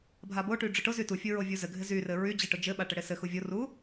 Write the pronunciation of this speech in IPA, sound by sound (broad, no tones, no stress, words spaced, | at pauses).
bʱaboʈy ɖ͡ʐʊʈʊzy tufʲʊ ɹovʲuzɘɡʱɪ zyrɘ ɹy d͡ʑɪʈʊ d͡ʒɘɓa ʈɘɽɪsɘxu vʲoru